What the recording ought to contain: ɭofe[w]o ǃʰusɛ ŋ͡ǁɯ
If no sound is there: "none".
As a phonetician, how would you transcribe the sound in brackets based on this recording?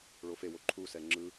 w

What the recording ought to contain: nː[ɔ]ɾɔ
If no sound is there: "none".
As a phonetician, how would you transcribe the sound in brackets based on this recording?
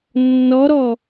ɔ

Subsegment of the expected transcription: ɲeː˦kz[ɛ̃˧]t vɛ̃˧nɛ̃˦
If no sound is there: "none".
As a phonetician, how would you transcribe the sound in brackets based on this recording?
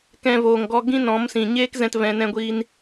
ɛ̃˧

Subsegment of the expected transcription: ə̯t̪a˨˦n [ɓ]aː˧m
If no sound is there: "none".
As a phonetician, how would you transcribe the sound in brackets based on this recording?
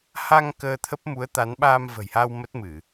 ɓ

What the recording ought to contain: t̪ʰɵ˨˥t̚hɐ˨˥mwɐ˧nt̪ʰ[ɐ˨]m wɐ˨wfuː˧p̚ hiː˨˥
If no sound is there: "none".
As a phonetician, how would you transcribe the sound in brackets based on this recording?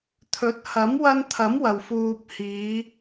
ɐ˨˥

